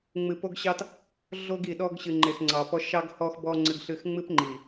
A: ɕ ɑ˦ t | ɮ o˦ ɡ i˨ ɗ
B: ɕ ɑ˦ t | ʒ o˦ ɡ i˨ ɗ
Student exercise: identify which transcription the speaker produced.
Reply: A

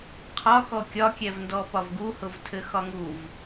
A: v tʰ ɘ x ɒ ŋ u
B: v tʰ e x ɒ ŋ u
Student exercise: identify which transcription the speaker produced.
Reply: A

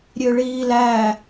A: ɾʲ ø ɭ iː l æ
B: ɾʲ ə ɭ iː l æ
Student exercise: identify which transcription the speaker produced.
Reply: A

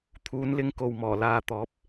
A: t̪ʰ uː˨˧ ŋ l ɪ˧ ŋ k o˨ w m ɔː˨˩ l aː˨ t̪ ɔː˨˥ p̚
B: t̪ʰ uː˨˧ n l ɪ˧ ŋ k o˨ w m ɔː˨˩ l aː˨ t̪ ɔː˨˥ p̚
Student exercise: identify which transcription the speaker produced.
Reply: B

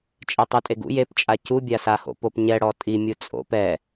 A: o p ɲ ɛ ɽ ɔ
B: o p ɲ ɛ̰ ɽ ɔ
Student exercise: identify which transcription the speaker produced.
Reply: A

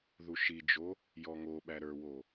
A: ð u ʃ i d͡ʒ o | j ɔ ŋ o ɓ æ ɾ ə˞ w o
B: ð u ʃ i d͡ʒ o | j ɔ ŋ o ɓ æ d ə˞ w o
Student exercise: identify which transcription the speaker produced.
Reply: A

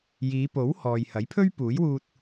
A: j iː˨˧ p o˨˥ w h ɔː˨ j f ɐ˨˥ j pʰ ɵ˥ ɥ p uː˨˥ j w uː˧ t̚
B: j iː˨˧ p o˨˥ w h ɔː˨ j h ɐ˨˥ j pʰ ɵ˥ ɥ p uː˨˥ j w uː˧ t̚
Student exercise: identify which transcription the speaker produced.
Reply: B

